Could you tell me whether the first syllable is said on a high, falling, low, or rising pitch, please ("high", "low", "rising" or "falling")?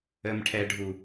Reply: low